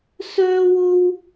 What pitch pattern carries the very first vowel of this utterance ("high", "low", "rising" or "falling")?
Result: high